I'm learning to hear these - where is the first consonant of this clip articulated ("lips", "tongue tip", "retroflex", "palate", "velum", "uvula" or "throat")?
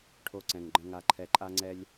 retroflex